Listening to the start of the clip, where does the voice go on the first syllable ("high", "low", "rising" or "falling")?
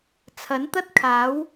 rising